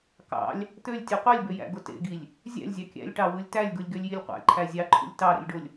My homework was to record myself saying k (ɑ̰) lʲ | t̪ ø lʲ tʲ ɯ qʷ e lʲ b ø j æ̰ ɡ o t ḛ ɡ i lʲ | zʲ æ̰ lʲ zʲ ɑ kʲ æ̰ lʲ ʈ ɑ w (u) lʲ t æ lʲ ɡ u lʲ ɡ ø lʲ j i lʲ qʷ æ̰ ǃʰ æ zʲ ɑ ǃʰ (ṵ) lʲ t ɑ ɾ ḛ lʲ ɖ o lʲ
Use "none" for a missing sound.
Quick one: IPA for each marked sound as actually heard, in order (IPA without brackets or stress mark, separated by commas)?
ɑ̰, ɯ, ṵ